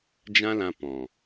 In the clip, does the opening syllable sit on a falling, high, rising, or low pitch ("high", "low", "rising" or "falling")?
high